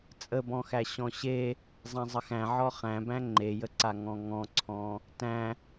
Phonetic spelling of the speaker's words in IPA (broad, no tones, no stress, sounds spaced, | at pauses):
t͡sʼ ə b ɔ̃ x æ ɕ ɔ̃ ɕ e | zˤ æ̃ zˤ ə x æ̃ ʕ ɔ χ æ̃ b æ̃ ŋ͡ǃ e j ə ǀ a ŋ ɔ̃ ŋ ɔ̃ ǀʰ ɔ̃ | t æ̃